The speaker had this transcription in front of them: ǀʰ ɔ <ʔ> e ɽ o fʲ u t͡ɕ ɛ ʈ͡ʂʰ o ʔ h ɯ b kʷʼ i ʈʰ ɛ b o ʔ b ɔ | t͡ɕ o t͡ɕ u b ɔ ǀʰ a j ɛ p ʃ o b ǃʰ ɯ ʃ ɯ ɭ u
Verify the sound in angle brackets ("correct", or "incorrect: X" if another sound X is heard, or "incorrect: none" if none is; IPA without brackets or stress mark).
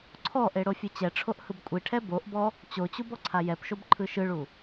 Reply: correct